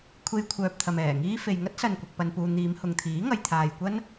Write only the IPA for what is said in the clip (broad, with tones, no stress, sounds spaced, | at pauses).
kʷʰ e˧ j kʷʰ œː˨ p̚ t̪ʰ ɐ˨ m ɛː˨˩ ŋ iː˧ f e˨ j ŋ ɐ˥ t̚ s ɐ˨ n kʷ ɐ˨ k̚ p ɐ˨ n p uː˨ n̪ iː˨˧ m h ʊ˨ ŋ t̪ʰ iː˨˥ ŋ ɐ˨ j t̪ʰ aː˨ j kʷ ɐ˥ n